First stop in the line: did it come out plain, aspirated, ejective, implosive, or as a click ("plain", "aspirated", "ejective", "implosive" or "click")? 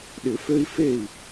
implosive